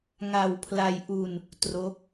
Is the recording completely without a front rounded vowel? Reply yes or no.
yes